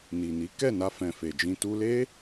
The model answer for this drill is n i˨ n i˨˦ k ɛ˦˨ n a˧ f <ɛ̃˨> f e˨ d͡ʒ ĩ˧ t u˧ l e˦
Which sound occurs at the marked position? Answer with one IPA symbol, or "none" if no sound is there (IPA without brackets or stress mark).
ɛ̃˨